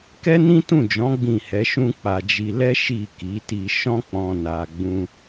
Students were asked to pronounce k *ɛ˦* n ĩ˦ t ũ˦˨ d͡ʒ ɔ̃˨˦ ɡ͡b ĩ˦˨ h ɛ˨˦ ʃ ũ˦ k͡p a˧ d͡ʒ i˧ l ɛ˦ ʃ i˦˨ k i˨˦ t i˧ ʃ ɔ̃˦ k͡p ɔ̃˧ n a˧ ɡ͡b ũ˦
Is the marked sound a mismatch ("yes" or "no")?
no